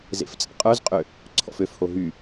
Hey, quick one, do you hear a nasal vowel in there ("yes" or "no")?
no